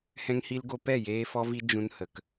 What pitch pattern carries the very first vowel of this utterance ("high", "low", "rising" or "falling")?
high